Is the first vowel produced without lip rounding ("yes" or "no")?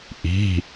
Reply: yes